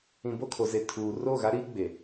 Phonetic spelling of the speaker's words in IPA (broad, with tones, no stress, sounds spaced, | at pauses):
ĩ˨ b o˦˨ kʰ o˨ z e˨ tʰ uː˨ r oː˦˨ ɣ a˦ ɾ iː˦ ɡ͡b e˨